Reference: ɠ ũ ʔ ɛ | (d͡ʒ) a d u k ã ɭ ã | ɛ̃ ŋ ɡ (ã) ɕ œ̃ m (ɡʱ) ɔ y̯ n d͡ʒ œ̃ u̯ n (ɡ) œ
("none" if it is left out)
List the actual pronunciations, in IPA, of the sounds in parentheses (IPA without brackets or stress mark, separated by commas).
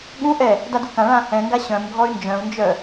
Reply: d, a, ɡʱ, d͡ʒ